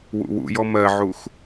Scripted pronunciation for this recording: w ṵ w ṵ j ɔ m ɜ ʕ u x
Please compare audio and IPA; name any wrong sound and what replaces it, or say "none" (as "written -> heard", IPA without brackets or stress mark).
none